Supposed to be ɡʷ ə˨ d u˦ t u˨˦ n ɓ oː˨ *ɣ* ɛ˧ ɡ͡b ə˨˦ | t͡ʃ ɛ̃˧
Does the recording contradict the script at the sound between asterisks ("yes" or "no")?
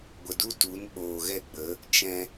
no